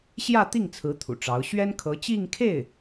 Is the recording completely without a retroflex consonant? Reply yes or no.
no